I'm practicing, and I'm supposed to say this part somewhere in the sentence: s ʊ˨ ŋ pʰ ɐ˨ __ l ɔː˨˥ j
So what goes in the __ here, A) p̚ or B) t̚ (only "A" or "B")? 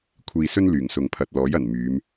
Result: B